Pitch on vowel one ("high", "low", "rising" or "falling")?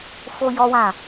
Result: high